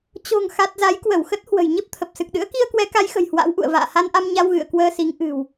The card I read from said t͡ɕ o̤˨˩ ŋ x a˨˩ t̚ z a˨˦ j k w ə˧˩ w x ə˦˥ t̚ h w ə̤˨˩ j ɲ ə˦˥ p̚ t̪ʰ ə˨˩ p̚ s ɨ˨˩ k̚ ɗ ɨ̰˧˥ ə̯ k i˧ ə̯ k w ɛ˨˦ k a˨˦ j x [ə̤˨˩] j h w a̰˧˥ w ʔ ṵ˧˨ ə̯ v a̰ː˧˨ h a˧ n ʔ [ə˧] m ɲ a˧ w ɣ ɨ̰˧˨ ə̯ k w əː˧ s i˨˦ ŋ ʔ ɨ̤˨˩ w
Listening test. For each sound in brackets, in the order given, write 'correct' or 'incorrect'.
correct, incorrect: a˧

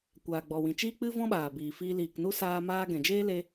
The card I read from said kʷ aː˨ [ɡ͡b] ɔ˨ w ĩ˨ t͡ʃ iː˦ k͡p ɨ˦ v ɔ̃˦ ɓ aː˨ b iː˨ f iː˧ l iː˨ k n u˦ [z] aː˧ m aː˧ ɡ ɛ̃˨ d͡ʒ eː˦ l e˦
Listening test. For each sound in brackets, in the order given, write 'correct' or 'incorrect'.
correct, incorrect: s

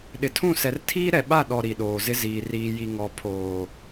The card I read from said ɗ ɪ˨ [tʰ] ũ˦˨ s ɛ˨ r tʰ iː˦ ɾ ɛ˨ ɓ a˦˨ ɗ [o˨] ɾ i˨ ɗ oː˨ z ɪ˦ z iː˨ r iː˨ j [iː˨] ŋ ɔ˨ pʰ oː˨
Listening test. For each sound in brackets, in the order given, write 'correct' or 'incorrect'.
correct, incorrect: ɔ˨, incorrect: i˨

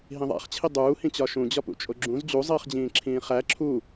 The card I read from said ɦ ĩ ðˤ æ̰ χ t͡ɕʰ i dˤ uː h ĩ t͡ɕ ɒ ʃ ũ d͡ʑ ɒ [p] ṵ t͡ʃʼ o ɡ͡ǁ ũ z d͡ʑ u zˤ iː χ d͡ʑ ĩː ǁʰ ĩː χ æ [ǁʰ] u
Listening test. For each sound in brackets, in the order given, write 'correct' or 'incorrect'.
correct, correct

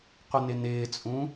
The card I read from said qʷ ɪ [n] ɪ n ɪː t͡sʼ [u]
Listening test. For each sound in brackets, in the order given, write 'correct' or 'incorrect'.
correct, incorrect: ũ

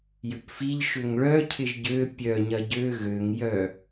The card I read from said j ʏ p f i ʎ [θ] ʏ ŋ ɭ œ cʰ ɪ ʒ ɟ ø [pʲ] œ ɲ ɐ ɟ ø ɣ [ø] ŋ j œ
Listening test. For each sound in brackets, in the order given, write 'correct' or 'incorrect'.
incorrect: ʃ, correct, correct

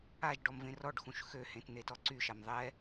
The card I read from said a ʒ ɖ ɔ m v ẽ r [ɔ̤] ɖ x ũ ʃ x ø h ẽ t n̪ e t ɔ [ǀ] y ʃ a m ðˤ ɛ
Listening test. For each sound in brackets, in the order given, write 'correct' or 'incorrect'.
incorrect: ɔ, correct

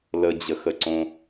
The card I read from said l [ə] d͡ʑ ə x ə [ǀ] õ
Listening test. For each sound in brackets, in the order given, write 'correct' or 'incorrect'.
correct, correct

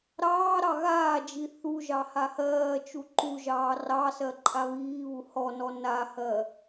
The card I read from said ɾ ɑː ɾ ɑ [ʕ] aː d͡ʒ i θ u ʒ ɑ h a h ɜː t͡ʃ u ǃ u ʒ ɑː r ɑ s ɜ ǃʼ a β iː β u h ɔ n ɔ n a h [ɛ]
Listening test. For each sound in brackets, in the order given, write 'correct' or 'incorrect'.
incorrect: ɣ, incorrect: ɜ

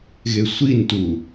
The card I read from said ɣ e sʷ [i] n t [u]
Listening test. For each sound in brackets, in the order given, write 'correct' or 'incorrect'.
correct, correct

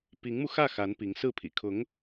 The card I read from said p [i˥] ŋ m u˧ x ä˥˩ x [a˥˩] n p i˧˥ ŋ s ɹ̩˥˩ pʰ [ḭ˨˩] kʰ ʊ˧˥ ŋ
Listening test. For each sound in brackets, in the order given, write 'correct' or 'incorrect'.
incorrect: i˧˥, incorrect: a˧˥, correct

